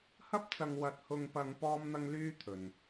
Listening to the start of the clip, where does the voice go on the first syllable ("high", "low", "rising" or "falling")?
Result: high